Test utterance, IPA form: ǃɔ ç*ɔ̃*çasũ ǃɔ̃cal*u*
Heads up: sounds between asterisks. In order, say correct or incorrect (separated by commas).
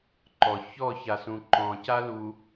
incorrect, correct